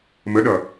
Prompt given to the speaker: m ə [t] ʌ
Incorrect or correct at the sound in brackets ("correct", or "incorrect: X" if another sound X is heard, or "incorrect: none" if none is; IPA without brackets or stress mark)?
incorrect: ɗ